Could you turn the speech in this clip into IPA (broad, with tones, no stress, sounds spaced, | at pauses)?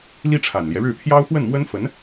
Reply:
l i˥ ʈ͡ʂʰ a˨˩ n l j ɛ˦ ɻ ɻ̩˥˩ t̪ʰ j ɑ˥ ʊ̯ x w ə˥˩ n m w ə˥ n f ə˧˥ n